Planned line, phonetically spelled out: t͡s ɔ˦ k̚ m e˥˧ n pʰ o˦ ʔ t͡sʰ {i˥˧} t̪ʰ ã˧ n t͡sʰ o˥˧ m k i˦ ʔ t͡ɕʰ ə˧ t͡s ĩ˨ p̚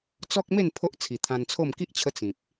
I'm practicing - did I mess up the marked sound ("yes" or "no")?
yes